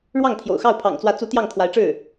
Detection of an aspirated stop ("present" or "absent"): present